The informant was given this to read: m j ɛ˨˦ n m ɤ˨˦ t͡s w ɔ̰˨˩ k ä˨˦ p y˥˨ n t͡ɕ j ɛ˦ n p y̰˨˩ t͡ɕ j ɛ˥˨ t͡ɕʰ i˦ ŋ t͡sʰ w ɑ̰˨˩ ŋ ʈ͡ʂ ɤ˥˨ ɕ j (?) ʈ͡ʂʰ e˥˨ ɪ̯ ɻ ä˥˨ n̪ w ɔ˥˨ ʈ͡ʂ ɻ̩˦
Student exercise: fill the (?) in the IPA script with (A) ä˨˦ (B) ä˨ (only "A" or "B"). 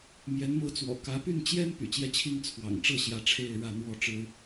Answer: A